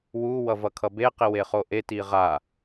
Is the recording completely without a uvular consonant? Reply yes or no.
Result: no